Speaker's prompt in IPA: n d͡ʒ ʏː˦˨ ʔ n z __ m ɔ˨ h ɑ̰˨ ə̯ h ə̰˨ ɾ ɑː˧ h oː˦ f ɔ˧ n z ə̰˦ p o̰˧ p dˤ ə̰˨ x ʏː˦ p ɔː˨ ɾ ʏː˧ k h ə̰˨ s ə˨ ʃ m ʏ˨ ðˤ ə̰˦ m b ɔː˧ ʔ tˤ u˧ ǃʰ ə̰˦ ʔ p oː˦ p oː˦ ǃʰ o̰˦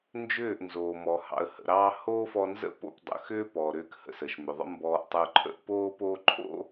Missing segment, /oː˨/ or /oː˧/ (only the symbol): oː˨